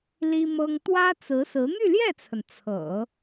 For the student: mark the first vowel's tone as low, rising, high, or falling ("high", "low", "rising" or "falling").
high